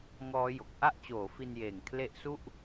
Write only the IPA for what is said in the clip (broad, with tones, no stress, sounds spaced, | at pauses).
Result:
ŋ ɔː˦˥ j o˨˩ k̚ ʔ a˥˩ ʔ t͡ɕ oː˩˦ f i˧ n j eː˨˩ ŋ kʰ l e˦˥ ʔ s u˥˩ ʔ